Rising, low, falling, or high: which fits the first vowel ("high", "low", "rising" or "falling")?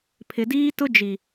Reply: low